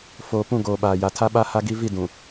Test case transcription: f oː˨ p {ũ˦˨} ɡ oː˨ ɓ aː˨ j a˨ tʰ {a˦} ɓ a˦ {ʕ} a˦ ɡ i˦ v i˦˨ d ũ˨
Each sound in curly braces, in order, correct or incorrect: correct, correct, incorrect

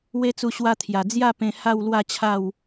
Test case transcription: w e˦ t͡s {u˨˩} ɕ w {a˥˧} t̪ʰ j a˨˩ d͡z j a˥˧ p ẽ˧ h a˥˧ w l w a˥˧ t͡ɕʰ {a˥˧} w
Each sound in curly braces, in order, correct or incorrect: incorrect, incorrect, correct

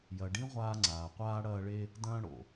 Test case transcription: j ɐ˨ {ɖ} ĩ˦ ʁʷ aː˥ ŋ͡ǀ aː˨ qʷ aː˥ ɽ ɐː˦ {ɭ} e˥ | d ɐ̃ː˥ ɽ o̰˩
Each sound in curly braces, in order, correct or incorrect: correct, correct

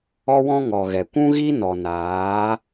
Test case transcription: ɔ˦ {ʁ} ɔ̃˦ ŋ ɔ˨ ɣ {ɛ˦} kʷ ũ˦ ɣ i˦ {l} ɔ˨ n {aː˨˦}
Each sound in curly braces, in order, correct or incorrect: incorrect, incorrect, incorrect, correct

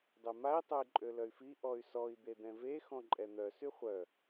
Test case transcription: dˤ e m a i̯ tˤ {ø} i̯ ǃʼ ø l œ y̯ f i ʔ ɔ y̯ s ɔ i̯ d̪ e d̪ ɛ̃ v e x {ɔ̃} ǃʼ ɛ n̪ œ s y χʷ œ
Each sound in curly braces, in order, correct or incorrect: incorrect, correct

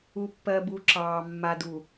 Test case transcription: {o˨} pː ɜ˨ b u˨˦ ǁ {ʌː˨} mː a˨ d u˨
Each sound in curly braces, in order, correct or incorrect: incorrect, incorrect

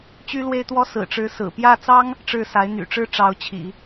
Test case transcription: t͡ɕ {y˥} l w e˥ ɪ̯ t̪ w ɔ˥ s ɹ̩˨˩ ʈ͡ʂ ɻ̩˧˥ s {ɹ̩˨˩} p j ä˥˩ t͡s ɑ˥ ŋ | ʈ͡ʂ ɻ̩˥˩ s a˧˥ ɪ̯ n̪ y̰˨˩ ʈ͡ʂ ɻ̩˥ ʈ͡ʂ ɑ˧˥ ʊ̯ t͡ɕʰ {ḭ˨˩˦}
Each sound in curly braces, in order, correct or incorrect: correct, correct, correct

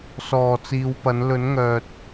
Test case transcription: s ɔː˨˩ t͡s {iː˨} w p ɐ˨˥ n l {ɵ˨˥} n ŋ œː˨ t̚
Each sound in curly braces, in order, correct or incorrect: correct, correct

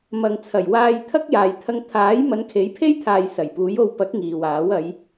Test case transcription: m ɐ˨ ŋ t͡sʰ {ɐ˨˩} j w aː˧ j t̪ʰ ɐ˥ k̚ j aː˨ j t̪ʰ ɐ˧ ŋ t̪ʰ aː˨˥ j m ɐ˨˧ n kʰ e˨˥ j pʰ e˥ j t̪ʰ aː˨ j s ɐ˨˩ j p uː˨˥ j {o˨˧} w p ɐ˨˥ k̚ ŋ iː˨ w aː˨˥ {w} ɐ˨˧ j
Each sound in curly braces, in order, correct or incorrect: correct, incorrect, correct

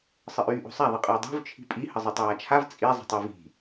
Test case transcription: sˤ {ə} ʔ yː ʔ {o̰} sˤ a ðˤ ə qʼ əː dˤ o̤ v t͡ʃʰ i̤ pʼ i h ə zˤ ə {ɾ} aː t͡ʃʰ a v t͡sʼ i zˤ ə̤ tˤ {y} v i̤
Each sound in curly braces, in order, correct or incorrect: correct, incorrect, incorrect, correct

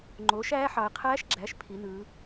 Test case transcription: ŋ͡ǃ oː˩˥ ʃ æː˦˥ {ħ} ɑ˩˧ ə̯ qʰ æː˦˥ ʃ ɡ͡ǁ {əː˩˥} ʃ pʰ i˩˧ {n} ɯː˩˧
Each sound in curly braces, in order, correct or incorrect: correct, incorrect, correct

